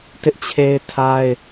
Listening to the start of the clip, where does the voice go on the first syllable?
high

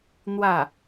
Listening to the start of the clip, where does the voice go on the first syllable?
falling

